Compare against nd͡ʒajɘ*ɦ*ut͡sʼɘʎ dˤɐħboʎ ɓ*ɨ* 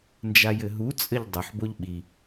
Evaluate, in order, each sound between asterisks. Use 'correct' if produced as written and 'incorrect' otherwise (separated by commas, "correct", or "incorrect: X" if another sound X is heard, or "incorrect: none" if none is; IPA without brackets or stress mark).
correct, incorrect: i